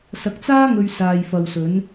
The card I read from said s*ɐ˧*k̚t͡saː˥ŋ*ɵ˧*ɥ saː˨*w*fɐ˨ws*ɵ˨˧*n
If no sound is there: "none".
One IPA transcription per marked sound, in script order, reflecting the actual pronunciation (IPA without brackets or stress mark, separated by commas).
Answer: ɐ˧, ɵ˧, j, ɵ˨˧